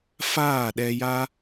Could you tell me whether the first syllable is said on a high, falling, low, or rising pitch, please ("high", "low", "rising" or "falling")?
falling